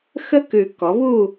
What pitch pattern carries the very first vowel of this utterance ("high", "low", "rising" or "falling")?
high